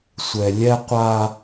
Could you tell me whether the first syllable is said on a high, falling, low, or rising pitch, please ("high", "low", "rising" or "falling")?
low